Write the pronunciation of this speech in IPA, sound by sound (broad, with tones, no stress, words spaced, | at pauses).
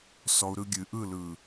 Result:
sɔ˧u̯ɾɯ˧ ɡʲɨ˨ʔɯ˦˨ lɯ˨